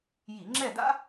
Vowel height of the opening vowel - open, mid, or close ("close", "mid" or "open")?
close